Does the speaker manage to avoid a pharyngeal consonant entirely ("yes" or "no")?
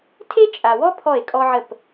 no